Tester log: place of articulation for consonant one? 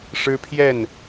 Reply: retroflex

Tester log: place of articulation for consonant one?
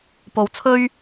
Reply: labial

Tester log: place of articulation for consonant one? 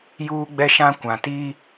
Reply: palatal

